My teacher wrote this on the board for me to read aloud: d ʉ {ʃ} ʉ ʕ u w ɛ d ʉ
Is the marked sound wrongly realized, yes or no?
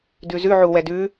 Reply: yes